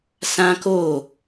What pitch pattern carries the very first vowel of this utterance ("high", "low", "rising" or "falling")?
high